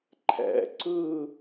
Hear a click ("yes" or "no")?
yes